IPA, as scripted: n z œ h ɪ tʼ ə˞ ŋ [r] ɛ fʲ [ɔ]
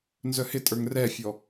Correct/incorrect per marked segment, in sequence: correct, correct

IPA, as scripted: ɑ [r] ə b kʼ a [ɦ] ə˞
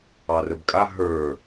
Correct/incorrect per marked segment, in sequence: correct, correct

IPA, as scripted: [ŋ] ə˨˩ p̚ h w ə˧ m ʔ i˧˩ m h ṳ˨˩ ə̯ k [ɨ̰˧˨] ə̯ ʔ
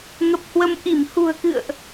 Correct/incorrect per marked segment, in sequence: correct, correct

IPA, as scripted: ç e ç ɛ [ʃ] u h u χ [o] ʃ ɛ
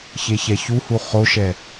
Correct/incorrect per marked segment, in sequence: incorrect: ç, correct

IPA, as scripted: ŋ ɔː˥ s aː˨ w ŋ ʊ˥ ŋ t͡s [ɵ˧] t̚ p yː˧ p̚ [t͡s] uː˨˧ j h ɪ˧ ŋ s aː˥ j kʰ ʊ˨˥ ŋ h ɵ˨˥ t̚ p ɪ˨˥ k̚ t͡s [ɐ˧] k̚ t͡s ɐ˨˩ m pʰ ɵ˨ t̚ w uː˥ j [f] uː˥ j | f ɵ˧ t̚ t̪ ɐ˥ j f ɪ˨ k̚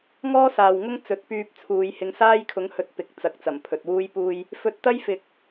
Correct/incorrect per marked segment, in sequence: incorrect: ɵ˨˥, incorrect: t͡sʰ, incorrect: ɐ˨˥, incorrect: p

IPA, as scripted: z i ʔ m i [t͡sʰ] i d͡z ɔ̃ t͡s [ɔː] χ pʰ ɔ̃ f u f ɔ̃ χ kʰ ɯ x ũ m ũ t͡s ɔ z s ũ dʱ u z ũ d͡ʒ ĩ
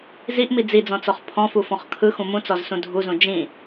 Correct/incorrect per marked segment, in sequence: incorrect: d͡z, incorrect: ɔ

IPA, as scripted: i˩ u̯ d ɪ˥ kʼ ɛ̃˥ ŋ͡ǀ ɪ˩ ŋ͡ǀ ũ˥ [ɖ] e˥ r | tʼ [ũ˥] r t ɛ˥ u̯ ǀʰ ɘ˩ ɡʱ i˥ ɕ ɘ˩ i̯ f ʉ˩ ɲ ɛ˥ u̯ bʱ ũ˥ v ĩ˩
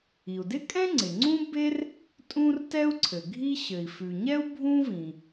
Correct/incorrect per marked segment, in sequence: incorrect: b, correct

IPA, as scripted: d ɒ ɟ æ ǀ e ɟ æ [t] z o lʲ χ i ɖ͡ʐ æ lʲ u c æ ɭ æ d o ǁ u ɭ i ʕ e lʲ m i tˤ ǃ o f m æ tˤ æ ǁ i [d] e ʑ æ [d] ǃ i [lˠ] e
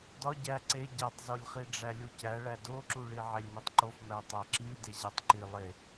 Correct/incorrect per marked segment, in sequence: incorrect: tˤ, correct, incorrect: tˤ, correct

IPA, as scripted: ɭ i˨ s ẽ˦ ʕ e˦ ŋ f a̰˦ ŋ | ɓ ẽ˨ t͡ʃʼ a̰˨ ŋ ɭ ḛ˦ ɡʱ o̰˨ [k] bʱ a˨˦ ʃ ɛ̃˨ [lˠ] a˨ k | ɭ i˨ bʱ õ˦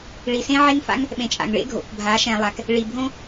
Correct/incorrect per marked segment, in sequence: correct, correct

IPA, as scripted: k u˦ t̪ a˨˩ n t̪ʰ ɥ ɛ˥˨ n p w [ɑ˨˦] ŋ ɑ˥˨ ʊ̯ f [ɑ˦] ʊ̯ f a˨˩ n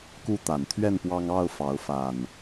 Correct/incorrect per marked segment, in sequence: incorrect: ɑ˦, incorrect: ɑ˨˦

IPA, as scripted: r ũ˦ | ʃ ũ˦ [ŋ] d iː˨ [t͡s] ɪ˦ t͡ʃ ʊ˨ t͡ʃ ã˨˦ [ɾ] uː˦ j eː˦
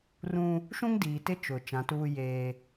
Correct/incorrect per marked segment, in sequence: correct, incorrect: t, incorrect: t

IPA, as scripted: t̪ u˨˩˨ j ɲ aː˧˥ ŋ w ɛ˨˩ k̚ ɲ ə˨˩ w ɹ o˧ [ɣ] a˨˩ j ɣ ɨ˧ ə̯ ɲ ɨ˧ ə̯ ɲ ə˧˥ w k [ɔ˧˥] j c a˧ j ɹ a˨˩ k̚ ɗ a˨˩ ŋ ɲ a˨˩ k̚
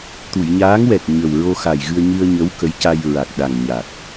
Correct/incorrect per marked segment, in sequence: incorrect: x, incorrect: ə˧˥

